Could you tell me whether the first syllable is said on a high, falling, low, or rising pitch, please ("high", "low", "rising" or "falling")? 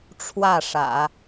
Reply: falling